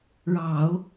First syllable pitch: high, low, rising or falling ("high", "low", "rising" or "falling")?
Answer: low